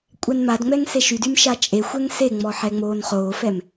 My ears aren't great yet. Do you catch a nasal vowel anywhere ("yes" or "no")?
no